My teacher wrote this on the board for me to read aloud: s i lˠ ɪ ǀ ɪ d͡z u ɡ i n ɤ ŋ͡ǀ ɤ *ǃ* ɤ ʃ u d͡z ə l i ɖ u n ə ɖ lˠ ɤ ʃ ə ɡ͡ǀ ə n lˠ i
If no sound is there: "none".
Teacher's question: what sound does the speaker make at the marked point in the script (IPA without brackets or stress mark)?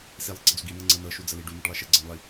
n